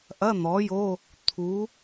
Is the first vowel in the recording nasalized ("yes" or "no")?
no